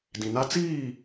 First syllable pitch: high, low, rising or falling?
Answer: low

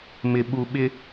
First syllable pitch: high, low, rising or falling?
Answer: low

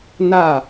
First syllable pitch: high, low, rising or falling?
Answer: falling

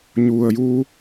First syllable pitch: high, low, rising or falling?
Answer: low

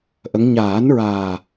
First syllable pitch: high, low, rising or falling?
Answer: rising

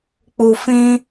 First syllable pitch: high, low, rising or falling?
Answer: low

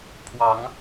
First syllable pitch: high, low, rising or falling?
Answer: rising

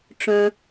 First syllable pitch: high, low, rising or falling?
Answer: low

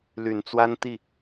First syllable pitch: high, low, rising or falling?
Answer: low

